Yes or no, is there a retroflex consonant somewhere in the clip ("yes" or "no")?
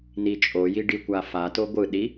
yes